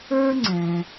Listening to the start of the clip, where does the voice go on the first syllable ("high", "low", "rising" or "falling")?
high